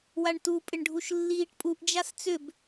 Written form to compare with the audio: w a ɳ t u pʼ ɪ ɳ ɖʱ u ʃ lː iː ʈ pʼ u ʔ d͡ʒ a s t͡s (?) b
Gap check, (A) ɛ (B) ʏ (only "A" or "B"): B